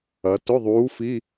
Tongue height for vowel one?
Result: low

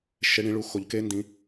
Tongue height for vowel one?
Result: mid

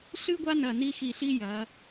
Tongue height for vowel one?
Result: high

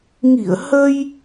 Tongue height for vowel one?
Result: high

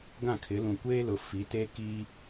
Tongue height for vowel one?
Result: low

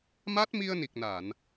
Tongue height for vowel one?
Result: low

